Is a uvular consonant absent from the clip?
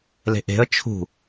yes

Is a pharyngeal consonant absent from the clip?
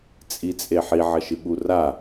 no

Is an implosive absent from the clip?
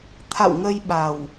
no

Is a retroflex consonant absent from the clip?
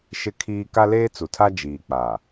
yes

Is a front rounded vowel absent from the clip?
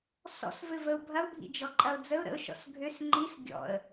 no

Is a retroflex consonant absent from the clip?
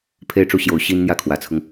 no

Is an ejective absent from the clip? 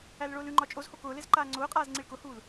no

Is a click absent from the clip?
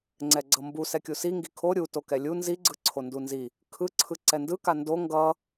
no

